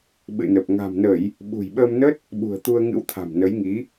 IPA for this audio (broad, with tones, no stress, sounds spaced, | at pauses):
ɓ ɨ̰˧˨ n ə˨˩ p̚ ŋ a̤˨˩ m n ə˧˩˨ j | ɓ ṳ˨˩ j ɓ əː˧ m n ə˦˥ t̚ | ɓ ṳ˨˩ ə̯ t̪ u˧ ə̯ ŋ ɨ̰˧˥ w t̪ʰ a̤˨˩ m n ə˨˦ j ŋ i˨˦